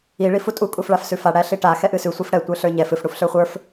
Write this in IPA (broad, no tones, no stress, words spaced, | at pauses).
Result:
i ɭifutʼu kʼufɭafsʉfa ɽæɬiʈa xɛʔɨsʉ sʷifɽɛ tʷə˞ɬə˞ɲɛf ɨf ɽufɬə˞χʷə˞f